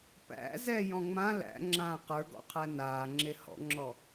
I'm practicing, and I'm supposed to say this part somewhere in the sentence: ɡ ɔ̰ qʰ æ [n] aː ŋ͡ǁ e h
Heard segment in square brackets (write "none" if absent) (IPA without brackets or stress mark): n